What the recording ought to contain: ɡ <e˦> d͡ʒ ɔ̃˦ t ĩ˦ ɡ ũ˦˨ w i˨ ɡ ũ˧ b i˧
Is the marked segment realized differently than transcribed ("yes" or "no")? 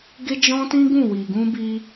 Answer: no